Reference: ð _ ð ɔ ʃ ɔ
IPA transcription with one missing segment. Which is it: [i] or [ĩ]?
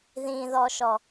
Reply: ĩ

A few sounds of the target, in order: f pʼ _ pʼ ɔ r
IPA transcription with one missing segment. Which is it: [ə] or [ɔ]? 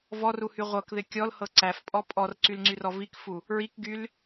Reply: ɔ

